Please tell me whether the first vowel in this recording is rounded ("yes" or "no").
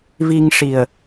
no